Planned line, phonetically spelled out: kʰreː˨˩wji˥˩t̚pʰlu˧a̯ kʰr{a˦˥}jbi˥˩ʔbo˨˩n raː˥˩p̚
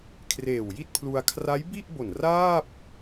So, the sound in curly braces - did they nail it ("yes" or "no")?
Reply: yes